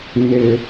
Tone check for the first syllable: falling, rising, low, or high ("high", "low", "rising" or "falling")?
high